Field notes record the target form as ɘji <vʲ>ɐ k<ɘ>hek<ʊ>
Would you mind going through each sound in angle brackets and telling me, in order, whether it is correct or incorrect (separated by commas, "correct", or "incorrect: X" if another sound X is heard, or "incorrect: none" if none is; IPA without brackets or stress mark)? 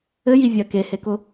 correct, incorrect: e, correct